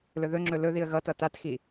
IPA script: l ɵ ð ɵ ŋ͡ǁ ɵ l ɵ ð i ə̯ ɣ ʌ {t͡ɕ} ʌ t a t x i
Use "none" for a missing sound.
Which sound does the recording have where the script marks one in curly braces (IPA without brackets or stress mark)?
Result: t